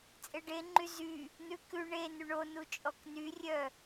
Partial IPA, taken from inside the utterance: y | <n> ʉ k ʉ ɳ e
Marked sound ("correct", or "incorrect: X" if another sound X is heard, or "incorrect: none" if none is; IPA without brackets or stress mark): correct